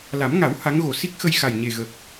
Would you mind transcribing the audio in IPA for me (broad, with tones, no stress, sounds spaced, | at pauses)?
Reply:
l a˨˩˦ m ŋ a˨˩˦ w h a˧˥ ŋ ɣ o˨˩ s i˦˥ k̚ x ə˧ j x a˨˩ j ɲ e˨˩ ɣ ə˨˩ k̚